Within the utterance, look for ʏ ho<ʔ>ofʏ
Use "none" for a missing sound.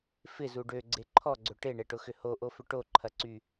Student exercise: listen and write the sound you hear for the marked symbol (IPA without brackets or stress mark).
ʔ